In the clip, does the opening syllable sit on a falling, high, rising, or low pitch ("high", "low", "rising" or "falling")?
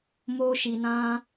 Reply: high